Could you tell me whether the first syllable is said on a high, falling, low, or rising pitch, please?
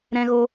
high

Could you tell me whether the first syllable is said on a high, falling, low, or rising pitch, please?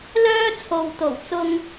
high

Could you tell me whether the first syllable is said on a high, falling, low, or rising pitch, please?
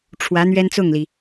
rising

